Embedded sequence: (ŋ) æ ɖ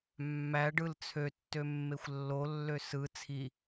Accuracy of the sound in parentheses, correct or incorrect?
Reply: incorrect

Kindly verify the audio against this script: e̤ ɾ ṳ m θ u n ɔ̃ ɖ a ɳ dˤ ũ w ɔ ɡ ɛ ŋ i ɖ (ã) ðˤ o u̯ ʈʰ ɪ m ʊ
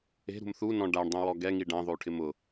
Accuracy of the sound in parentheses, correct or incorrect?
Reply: correct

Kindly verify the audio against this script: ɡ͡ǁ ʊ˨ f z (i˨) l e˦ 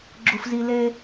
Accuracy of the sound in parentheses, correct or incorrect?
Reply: correct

